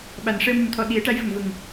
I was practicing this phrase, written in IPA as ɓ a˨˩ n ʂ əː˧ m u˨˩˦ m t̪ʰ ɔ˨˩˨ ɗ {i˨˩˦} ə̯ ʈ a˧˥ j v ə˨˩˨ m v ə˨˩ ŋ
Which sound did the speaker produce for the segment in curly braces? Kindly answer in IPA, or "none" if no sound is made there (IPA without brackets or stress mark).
i˨˩˦